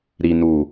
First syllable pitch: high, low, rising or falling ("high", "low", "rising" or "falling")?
low